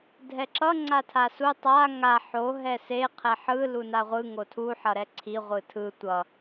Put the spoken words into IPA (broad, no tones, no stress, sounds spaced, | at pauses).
dʱ ɛ ǁ ʌ ŋ͡ǀ a tʰ a s u tˤ a ŋ a ħ o ɦ ɛ s e qʰ ɛ ħ ɯ l u n a ʁʷ ɯ ŋ o tʰ u ħ ʌ ɾ ɛ ǀʰ i ʁʷ ɯ tʰ ɯ tʷ ʌ